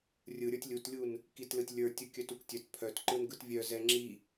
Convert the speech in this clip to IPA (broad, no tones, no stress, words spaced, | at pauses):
rʲɯ ɾʲə˞tʲlʲutlʲun | kitlɯtʲ lʲə˞tʲɯ kʲœtuktʲœt pʰœtǃɯn ɡɯtvʲœ zɛŋ͡ǁi